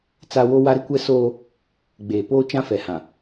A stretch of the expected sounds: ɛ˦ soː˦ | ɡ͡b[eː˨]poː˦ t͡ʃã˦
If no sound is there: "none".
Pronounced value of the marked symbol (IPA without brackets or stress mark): eː˨